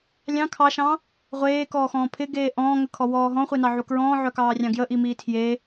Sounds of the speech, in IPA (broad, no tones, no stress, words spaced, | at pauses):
lʲɑ̃ kʰɑʃɑ̃ | ʁʷeːkɔːxɔ̃ː pʰɪɡeː ʔɔ̃ːŋəkʰɔwɔː ɦɔ̃χʷenɑʕu kɹɔ̃ːʕœkɑːrʲɑ̃ ɡjəʔimiː tʰje